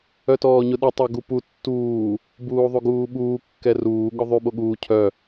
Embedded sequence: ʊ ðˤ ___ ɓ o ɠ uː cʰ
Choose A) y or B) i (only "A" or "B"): A